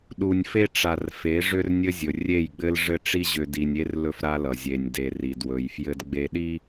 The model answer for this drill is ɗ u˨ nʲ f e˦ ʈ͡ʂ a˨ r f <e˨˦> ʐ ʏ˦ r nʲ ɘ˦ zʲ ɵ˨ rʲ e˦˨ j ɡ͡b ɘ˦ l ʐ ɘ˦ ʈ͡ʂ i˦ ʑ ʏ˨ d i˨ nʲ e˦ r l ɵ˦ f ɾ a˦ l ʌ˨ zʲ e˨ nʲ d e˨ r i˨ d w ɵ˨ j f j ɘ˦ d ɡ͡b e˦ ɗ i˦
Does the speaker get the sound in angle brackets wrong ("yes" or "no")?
no